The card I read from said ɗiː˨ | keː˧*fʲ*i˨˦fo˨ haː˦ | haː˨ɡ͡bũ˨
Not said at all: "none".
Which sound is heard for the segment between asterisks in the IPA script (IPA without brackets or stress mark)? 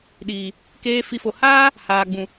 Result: f